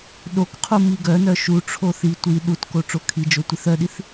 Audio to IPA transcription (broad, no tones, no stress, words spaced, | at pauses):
ɗokqʰu miɡœnœ ʃuʈ͡ʂʰo θi tʷi ɗutko ʈ͡ʂokʰid͡ʒo tʷiθœɗiθ